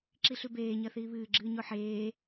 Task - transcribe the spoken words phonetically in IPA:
ǁiɬʉbeː ɲɐθiːβɨː ɡ͡ǁɨːɲoħeː

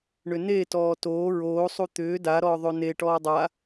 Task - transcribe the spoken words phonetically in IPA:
ɳʏne tɔːtoː ɹoː sˤut̪ʏː da ɾɔːðˤone ʈɔːdˤa

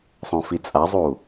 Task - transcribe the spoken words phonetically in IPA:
sˤõfit͡sʼazˤu

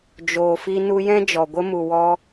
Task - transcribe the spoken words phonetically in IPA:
d͡ʒoː˨fi˧ nu˧jɛ̃˦ d͡ʒɔ˨ɡʷə˦ mu˨ wɔ˦

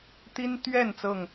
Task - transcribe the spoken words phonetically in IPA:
t̪i˦nt̪ɥɛ˥˨n t͡sɤ˥˨ŋ

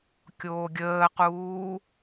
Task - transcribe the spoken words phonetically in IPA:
kʲoːɡʲəːquː

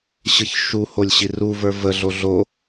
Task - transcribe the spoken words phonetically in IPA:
ɕɯçʃuholʲ ɕiruvə˞ vəɮo ɮo

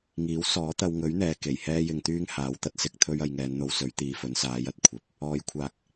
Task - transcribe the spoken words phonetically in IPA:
ŋiː˨˥w sɔː˨˥t̪ɐ˧wŋɵ˨˥ɥn̪ɛː˨ ke˨˩jhɛː˥jɪ˧ŋt̪yː˥ŋ haː˨˧wt̪ɐ˥t̚ sɪ˨k̚t̪ʰɵ˧ɥ ɐ˧jŋɛː˨˧nn̪o˧wsɵ˨˥ɥ t̪iː˧fɵ˨˥nsaː˨˥jɐ˧t̚ kʷʰɐ˨p̚ | ɔː˨˧jkʷʰaː˨k̚

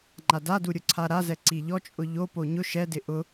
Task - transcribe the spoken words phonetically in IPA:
ŋ͡ǃadadu ɾʲʊǀʰaɾazɛ ǀiʎɔt͡ʃʼʊ ʎopo ɲʊ ʃɛdɪ ʔʊ

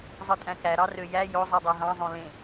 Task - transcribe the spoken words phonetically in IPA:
zˤɯtʼæ̃kæ ɾɑrøjæ jo zˤidˤæɦɑ̃zˤõ lẽ

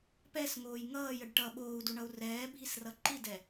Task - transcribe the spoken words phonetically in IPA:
pɛsŋoːj ŋʌːjəɖ ʈʌ ɓoːu̯duɳʌu̯ rɛːbʱisrʌ ǃidɛ

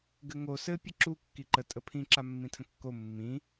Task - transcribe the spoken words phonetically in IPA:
ɡɘŋo sɘ pʲəǁu kːiǃə tʼəpʰĩ ǁamːĩtʰə̃kːo mːĩ

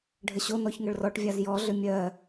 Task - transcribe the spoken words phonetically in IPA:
ɖʱəɕonɔç ŋəɭrɔʈvʲaz jɔɮʏ mʲɜ

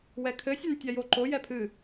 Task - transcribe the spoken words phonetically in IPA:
wɛkʰɘ sʲɛntʲajoǃo jɛpʰɨ

